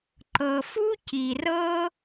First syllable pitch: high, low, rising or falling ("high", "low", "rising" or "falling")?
low